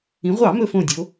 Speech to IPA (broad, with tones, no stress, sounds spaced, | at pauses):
ĩ˩˧ ʁʷ ɑ˧˩˧ m ɵ˧˩ f õ˧˩ dʲ o˩˧